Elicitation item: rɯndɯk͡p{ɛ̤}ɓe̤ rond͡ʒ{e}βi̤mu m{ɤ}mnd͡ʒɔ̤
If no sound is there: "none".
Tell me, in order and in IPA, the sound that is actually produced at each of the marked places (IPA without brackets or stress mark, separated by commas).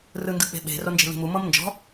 e̤, e̤, ɤ